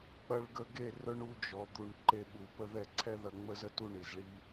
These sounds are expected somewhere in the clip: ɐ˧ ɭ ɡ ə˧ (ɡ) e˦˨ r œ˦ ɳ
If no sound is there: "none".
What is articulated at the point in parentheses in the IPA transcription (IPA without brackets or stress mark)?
ɡ